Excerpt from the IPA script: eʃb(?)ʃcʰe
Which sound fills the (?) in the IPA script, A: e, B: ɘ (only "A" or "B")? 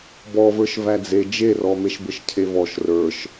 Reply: B